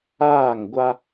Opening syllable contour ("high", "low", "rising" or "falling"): falling